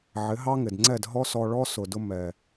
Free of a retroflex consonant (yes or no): no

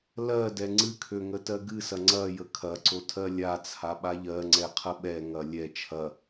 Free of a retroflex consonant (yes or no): yes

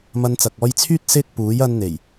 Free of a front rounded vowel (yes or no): no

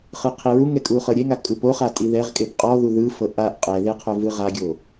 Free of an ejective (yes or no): no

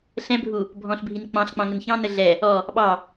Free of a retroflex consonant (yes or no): yes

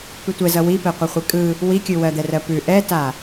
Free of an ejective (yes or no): no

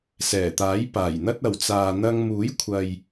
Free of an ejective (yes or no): yes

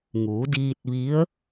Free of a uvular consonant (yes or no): yes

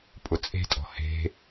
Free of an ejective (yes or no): no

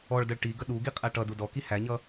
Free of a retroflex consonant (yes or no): no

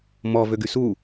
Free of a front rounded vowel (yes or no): no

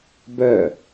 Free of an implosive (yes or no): yes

